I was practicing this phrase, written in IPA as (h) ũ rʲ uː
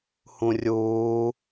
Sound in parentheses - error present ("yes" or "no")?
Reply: no